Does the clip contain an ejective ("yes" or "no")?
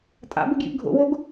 yes